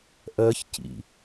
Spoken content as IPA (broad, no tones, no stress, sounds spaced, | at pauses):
ʔ ɜ ç c ḭ